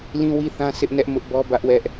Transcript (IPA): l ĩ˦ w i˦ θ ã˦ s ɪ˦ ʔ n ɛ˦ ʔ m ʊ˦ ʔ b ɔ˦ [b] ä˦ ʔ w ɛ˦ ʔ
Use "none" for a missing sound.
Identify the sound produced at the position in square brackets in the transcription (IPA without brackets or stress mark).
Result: b